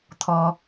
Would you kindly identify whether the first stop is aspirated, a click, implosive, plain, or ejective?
aspirated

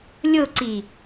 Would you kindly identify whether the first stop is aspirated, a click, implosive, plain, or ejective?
click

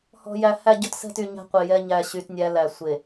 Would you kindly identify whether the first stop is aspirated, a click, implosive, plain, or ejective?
plain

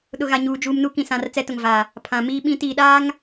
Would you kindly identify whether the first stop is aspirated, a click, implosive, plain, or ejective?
implosive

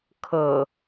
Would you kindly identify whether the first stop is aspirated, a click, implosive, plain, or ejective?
aspirated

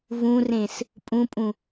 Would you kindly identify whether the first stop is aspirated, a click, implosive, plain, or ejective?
ejective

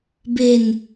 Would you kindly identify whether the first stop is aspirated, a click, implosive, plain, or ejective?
plain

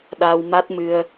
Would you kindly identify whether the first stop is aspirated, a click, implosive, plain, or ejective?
implosive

